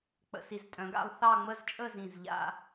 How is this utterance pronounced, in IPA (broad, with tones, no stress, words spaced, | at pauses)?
k͡pə̰˧si˧˩z tʼœ̃˩˧ɡa̰˥˧lˠ θɑ˥˧ŋ͡mə˥˧zt͡ʃʼə˥˧ zĩ˧˩zʎa̰˥˧